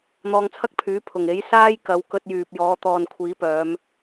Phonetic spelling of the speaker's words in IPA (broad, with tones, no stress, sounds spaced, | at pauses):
n̪ ɔː˧ ŋ t͡sʰ ɐ˥ k̚ pʰ yː˨˥ pʰ ʊ˨˩ ŋ e˨˥ j s aː˥ j k ɐ˨˧ w k ɵ˧ t̚ j yː˨ p̚ j ɔː˨˧ t̪ ɔː˨ n kʷʰ iː˨˥ p œː˨˧ m